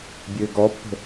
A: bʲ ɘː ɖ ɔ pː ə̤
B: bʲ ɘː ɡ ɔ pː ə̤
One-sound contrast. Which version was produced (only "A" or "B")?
B